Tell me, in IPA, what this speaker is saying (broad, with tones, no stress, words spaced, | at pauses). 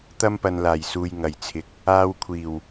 t̪ɐ˥mpɐ˨nlaː˨˩j suː˨jŋɐ˨˩jt͡sʰɪ˨˥k̚ | aː˧wkʷʰiː˨˩w